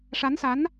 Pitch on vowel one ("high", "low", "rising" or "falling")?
rising